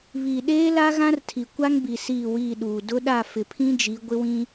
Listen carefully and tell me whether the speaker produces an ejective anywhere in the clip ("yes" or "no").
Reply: no